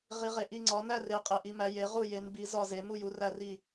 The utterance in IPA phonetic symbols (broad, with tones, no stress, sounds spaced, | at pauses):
ʁ i˨˥ ʁ e˨˥ ʔ i˥˨ ŋ͡ǀ ɒ˨˥ n æ˥˨ r e˨˥ qʼ e˨˥ ʔ i˨˥ m æ˨˥ j e˨˥ ʁ u˥˨ j e˨˥ n b i˨˥ z ɒ˥˨ z e˨˥ m u˥˨ j u˨˥ r æ˥˨ r i˥˨